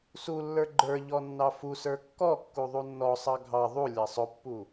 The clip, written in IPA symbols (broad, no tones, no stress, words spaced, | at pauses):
sulːə˞ ɡ͡ǃə˞ ʎɔnːɑfusə˞ kːɔkːu ðˤunːɔsˤɑ ɡʱɑ ðˤu lʲɑsˤʊpːu